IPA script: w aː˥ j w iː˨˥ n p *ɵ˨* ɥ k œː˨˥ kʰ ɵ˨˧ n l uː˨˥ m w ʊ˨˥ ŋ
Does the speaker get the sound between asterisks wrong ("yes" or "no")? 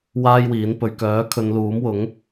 no